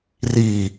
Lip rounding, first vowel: unrounded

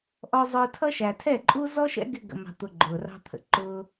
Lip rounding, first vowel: rounded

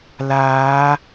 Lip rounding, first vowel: unrounded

